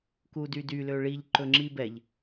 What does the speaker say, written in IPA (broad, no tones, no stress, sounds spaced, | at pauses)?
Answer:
k u d y d y l ø ɭ i ʎ ǃ ɵ ŋ͡ǁ i b ɛ ʎ